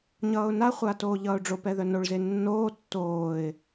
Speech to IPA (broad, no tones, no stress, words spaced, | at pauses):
ɲʌːʊ̯naχʷa toːʎʌːʊ̯ɖ͡ʐopɛ ðœnoɭze nːoː tːoːɪ̯